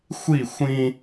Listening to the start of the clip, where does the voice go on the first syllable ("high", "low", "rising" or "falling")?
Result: falling